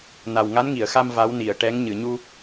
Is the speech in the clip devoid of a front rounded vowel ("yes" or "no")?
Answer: yes